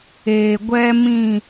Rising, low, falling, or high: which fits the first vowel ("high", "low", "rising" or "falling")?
low